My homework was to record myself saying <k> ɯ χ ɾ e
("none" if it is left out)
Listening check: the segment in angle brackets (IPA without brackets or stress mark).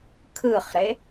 kʰ